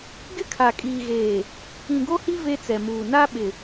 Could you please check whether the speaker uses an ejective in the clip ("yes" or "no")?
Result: yes